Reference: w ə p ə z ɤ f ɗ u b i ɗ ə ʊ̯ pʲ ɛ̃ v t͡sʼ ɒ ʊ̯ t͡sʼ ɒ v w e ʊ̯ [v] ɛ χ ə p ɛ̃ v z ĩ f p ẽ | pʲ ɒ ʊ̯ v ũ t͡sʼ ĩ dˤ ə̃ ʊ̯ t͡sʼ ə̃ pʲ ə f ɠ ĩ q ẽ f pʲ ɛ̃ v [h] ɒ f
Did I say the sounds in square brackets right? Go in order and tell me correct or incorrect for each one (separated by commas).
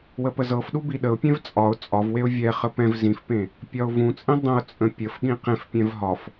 incorrect, incorrect